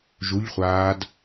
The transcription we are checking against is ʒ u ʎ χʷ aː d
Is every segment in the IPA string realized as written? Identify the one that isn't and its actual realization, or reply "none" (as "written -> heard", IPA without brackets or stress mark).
none